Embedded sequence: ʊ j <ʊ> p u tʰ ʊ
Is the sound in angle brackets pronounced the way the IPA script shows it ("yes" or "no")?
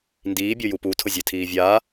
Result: no